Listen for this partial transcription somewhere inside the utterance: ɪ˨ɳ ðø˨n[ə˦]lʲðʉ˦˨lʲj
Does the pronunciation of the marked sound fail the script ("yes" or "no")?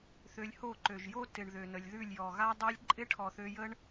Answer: yes